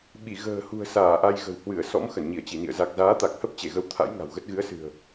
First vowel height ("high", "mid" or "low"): high